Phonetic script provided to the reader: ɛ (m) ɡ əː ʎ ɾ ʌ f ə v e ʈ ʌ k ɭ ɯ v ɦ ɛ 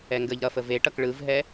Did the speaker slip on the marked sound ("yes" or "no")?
yes